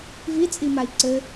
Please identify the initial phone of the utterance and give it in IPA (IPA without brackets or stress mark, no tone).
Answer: v